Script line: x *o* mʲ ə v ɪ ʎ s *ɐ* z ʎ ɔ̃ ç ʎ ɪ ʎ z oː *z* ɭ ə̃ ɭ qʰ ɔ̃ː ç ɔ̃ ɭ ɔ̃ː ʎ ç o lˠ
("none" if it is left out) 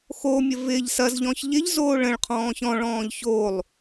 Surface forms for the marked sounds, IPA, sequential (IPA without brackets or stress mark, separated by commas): o, ɐ, none